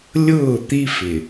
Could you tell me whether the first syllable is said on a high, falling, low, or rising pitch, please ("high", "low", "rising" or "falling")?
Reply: falling